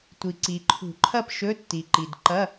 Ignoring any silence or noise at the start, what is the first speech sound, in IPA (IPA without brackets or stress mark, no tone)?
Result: tʷ